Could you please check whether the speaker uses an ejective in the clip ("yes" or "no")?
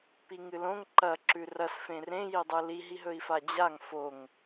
no